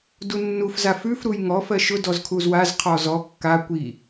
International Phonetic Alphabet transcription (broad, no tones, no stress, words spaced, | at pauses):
dunːuf zafʉf ɾujŋɔf ɜʃʊ dɔzkʰuzwaz qʰɔzɔ kːa kʷi